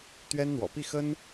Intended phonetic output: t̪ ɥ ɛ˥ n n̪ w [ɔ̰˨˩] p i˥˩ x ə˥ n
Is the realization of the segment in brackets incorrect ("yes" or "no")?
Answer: no